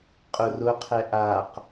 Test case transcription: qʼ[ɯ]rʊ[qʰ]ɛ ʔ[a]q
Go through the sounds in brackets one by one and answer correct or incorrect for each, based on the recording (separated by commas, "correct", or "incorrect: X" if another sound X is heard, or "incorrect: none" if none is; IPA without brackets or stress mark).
incorrect: ʊ, correct, correct